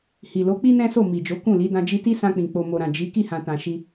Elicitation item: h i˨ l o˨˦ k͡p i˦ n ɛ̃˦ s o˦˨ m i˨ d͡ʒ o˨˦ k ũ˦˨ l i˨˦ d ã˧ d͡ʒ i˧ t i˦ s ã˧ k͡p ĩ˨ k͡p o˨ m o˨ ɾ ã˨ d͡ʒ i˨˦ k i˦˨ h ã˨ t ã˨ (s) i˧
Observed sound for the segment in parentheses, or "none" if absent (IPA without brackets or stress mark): ʃ